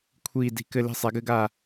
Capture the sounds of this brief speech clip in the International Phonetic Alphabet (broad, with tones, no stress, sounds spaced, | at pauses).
kʷʰ iː˧˩ d i̤˧˩ k ɘ˧˩ l i̤˧˩ sˤ ɛ˩˧ ɡ ɘ˩˧ ɡ a˧˩